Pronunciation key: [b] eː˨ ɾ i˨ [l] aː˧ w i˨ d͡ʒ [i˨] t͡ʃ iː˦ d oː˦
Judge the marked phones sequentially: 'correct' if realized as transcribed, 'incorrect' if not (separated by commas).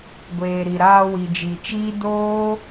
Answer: incorrect, incorrect, correct